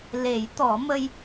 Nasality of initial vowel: oral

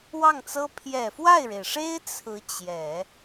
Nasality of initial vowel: oral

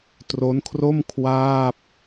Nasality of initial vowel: oral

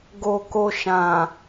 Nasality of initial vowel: oral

